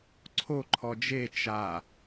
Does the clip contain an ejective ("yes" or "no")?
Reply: no